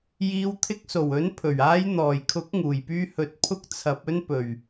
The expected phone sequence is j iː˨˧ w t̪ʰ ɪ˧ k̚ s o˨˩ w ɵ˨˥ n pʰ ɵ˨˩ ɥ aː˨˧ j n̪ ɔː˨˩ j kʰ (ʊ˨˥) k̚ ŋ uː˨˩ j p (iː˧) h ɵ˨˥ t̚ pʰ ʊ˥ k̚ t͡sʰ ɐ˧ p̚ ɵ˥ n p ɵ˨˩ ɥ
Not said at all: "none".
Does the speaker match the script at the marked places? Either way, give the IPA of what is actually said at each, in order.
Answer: ʊ˨˥, yː˧

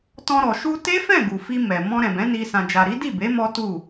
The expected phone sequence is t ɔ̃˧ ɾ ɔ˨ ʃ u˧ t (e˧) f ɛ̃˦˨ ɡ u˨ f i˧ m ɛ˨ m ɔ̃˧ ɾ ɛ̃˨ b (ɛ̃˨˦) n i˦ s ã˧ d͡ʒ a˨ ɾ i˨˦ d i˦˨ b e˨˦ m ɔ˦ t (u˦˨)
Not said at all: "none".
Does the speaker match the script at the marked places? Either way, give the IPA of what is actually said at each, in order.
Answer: e˦, ɛ̃˨˦, u˦˨

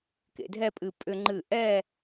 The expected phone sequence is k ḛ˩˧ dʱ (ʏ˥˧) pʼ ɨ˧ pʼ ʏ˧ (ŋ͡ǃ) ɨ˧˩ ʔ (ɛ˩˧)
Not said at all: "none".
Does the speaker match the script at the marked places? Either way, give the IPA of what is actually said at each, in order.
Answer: ɛ˥˧, ŋ͡ǃ, ɛ˥˧

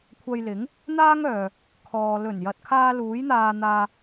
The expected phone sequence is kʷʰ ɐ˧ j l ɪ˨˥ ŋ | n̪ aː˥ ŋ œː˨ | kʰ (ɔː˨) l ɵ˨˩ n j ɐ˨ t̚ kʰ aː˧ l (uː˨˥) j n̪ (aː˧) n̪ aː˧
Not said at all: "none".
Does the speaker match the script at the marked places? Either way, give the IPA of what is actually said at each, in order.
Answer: ɔː˨, uː˨˥, aː˧

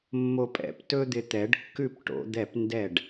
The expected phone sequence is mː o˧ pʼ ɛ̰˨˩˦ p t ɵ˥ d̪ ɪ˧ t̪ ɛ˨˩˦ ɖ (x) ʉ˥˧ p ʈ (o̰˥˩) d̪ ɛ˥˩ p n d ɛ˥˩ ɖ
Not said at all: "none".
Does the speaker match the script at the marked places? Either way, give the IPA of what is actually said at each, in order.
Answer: kː, o̰˨˩˦

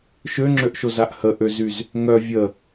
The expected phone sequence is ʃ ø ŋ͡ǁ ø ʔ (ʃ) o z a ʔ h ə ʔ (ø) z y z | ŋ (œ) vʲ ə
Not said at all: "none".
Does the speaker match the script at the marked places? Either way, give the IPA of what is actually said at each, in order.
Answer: ʃ, ø, œ

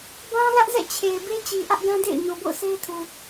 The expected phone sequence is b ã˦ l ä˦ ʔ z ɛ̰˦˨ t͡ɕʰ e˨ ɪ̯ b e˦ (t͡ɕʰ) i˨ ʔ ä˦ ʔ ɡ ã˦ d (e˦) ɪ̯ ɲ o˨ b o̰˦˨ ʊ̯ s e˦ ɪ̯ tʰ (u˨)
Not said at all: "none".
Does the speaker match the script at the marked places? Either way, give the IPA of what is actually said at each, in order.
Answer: t͡ɕ, ḛ˦˨, u˨

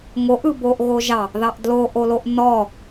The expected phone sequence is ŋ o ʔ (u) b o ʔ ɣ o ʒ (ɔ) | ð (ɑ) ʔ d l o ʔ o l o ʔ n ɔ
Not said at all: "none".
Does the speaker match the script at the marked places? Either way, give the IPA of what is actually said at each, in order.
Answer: ɯ, ɑ, ɑ

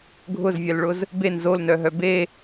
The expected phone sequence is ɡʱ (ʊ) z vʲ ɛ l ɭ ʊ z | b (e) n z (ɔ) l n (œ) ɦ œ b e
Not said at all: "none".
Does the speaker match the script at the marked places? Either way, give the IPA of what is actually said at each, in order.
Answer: ʊ, e, o, œ

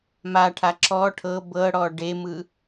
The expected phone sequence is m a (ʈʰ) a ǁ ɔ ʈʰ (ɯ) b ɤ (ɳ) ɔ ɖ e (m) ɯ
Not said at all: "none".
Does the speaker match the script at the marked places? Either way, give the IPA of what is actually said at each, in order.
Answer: ʈʰ, ɤ, ɽ, m

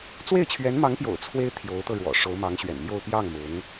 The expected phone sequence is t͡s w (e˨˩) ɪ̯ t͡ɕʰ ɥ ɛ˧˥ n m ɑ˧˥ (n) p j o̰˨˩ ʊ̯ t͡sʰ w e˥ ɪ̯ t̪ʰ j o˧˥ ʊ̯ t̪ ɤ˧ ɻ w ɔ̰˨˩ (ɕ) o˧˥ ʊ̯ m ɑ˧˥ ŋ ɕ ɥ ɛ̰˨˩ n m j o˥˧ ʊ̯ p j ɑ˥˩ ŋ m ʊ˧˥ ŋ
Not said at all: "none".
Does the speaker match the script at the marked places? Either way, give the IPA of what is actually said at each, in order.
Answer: e˥˩, ŋ, ʂ

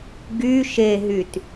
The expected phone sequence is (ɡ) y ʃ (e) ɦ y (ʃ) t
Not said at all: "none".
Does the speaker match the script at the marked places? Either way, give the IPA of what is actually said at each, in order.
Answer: ɡ, e, none

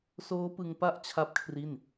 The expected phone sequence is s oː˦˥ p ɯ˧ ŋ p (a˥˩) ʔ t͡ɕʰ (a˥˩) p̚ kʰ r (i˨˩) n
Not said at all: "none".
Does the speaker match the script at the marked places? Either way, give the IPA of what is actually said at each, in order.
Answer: a˦˥, a˥˩, i˥˩

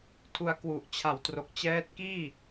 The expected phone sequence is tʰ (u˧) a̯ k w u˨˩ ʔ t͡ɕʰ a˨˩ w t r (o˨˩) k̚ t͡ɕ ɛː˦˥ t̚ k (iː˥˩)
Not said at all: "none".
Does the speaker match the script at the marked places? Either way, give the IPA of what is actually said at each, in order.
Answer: u˧, o˨˩, iː˥˩

